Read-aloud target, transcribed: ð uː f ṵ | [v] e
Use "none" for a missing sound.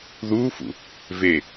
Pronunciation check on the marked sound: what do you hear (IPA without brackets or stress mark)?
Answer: v